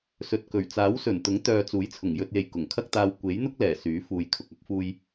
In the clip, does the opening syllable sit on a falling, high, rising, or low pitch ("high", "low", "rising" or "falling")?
low